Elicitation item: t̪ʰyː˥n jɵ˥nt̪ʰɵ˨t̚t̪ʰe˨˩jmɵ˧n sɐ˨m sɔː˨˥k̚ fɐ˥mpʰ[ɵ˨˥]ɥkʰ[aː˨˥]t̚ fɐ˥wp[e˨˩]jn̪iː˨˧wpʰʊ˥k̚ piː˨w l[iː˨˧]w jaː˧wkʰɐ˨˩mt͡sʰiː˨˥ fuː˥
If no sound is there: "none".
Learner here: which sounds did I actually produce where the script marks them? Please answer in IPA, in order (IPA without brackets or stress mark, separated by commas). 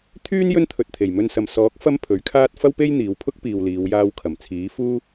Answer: ɵ˨˥, aː˥, e˥, iː˨˧